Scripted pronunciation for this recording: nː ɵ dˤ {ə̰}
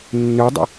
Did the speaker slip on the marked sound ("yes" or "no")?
no